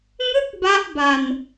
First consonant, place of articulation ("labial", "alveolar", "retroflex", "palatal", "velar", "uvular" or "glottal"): velar